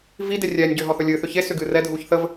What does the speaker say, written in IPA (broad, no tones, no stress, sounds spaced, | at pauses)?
v i d e rʲ ɛː nʲ ɟ ʏː ɦ ɔ θ ɵ lʲ ɨː θ ʏ ç e s ʏ ɡ ɨː r ɛ dʱ uː ç θ ə v